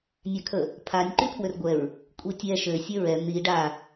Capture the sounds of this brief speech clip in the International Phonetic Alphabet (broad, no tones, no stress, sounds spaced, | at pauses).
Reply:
nʲ a kʰ ə | pʰ a nʲ ǃ y pʰ w ø r ɡʷ ɛ ɹ | kʷʼ i tʲ ɛ ʃ ø sʲ œ ɹ ɛ n̪ i ɖ a